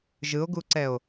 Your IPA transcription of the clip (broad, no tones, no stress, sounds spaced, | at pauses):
ʒ ɯ o̯ ɡ u ǀ ɛ o̯